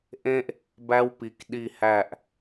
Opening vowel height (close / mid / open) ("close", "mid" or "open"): mid